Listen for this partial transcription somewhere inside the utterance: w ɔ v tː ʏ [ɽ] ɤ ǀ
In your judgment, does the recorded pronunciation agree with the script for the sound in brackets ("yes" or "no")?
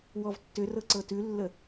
no